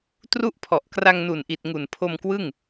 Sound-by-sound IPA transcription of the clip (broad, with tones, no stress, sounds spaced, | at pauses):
t r u˦˥ ʔ pʰ ɔ˨˩ ʔ k r a˧ ŋ n u˨˩ n ʔ i˨˩ t̚ ŋ u˨˩ n pʰ o˧ m k w ɯ˥˩ ŋ